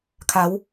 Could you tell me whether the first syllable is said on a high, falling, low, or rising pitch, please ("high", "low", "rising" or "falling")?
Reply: rising